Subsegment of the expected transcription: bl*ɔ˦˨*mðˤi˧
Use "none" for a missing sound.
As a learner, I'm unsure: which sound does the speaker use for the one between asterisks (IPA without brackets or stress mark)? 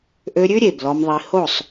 ɔ˧